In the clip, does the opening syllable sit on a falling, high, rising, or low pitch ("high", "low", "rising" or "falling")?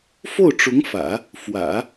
falling